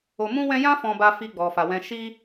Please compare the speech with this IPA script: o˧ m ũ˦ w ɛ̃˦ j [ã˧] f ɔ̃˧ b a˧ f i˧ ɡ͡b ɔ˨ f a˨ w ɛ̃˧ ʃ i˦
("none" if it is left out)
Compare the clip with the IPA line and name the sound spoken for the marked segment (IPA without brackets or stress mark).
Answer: ã˦